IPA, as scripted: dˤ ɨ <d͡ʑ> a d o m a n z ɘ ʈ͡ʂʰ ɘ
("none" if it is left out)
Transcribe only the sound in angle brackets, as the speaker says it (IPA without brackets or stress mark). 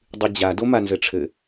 d͡ʑ